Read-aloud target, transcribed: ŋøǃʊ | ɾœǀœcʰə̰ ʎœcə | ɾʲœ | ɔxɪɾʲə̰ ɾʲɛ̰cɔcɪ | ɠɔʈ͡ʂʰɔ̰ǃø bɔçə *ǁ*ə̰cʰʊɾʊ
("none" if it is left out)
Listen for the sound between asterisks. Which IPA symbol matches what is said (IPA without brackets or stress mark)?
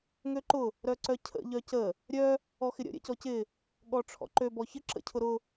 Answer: ǁ